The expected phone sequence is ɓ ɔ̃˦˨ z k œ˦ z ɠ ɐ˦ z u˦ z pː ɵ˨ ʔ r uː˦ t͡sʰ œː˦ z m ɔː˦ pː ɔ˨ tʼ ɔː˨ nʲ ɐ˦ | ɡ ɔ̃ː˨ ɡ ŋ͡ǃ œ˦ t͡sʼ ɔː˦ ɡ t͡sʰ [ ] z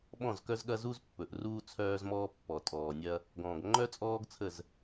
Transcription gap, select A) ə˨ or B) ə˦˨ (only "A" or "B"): B